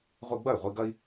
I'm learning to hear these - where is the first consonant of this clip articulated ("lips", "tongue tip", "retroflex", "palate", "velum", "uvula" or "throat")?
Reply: uvula